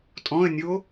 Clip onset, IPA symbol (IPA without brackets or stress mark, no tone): tʼ